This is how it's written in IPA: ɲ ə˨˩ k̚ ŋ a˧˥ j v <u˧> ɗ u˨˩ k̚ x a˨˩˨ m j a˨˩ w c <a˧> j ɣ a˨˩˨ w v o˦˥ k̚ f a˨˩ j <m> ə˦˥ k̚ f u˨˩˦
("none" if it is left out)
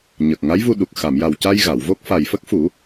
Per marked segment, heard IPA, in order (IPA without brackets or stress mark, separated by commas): u˧, a˧, f